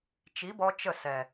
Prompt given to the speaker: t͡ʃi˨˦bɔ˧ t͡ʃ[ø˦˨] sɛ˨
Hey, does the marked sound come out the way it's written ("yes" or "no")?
no